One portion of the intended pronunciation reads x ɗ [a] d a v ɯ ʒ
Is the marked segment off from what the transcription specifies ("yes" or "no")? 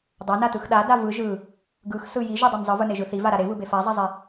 no